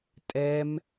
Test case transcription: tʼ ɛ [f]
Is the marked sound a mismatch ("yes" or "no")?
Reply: yes